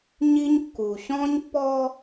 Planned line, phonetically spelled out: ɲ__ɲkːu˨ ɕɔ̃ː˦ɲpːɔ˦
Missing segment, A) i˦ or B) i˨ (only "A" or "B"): A